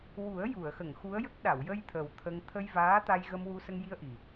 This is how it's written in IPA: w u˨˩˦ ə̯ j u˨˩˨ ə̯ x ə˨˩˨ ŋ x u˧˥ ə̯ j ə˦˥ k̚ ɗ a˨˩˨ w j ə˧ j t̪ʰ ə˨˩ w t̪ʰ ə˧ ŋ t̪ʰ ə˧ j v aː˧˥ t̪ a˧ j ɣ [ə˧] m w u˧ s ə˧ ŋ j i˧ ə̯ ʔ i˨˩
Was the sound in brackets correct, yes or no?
yes